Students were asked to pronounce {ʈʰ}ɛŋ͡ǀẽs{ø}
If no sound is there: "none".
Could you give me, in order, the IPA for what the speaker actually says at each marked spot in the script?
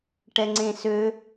ʈ, ø

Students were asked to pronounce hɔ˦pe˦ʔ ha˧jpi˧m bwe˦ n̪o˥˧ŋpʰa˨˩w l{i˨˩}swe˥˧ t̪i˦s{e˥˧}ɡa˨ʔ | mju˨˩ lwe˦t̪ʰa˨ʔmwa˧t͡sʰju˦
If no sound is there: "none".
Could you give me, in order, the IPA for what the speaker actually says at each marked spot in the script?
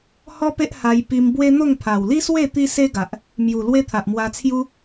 i˦, e˦

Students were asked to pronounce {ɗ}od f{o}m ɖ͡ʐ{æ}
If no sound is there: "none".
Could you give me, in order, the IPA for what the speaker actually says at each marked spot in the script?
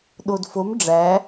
ɗ, o, æ

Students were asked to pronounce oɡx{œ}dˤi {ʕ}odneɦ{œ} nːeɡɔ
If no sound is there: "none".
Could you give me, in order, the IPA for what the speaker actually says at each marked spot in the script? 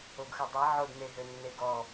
œ, ʕ, ø

